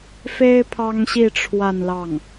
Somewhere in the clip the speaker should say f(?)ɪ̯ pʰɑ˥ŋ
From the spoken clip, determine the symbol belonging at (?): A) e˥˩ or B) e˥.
B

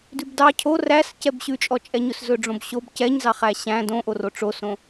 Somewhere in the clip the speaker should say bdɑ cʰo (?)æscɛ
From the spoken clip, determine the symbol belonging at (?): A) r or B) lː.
A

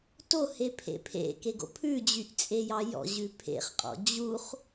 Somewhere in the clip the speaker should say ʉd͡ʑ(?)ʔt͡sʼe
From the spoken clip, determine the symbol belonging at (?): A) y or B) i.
A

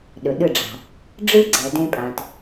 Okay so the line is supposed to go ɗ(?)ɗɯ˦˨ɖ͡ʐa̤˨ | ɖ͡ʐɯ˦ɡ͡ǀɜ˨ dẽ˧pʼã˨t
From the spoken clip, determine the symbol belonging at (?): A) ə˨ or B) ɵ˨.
B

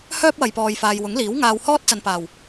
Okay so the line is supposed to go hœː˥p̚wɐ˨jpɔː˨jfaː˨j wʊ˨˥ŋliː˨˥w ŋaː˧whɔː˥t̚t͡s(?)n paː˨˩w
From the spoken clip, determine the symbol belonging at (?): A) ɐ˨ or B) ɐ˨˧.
A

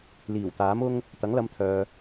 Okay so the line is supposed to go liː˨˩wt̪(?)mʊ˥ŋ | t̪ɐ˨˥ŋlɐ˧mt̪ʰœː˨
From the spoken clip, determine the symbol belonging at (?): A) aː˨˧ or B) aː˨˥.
B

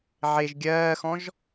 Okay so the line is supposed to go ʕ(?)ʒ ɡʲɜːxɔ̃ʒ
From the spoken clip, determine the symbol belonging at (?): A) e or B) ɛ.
A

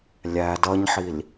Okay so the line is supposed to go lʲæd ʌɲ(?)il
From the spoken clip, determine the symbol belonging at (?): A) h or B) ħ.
B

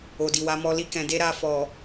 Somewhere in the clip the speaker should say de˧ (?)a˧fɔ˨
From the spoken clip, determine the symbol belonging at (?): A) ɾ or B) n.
A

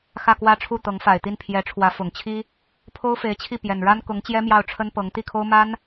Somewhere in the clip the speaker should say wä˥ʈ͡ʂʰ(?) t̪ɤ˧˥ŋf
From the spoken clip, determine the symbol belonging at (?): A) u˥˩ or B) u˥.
A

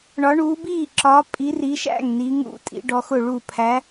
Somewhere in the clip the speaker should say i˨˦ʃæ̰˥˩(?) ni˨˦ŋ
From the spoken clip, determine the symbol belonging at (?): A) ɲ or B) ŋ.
B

